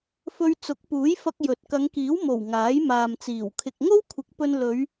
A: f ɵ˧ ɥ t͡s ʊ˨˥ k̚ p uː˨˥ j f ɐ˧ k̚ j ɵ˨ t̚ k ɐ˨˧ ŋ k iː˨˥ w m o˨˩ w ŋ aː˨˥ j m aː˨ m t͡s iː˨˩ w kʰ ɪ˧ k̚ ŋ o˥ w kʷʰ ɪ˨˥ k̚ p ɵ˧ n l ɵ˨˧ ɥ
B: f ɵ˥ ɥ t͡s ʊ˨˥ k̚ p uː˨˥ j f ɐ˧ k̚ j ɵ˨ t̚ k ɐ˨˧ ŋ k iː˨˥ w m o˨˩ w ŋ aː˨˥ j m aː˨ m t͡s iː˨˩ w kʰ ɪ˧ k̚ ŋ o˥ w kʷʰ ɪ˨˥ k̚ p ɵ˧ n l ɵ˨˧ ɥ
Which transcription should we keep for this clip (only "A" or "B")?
A